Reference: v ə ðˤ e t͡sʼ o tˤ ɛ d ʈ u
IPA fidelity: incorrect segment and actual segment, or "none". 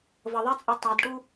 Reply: none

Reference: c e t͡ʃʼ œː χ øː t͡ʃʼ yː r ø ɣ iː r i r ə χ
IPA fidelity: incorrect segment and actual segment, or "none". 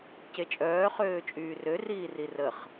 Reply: ɣ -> r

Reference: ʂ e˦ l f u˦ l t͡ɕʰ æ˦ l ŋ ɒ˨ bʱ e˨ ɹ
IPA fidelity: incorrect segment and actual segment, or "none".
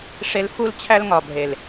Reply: ɹ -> l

